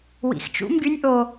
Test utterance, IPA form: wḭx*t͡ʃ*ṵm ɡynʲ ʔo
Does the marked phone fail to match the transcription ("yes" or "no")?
no